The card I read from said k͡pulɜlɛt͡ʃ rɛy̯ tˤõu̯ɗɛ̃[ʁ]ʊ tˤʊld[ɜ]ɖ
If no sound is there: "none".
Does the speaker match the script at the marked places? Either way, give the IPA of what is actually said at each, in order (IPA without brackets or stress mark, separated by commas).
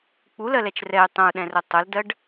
r, ɜ